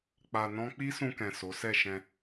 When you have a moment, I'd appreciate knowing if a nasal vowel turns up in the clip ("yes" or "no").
yes